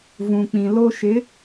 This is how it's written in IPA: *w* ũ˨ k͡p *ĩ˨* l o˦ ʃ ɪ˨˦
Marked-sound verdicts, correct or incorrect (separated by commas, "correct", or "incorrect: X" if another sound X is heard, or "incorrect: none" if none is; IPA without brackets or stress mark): incorrect: v, correct